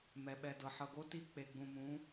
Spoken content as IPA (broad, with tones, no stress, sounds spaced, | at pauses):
m ɛ˨ ɓ ɛ˨ d ɤ˨ ħ ɤ˨ ɡ o˦ t i˦ k͡p e˨ ɡ͡b ũ˨ m ũ˨˦